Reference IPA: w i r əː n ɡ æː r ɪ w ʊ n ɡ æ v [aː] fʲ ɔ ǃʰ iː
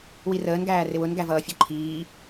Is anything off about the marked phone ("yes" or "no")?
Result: yes